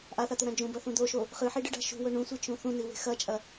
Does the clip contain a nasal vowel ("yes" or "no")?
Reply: yes